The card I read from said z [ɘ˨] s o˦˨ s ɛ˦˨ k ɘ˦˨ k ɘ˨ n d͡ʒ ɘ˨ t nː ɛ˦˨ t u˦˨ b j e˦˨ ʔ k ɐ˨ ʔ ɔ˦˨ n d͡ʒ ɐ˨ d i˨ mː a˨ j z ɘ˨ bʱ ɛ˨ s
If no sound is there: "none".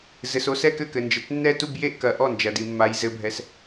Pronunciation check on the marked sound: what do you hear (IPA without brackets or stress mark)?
ɘ˨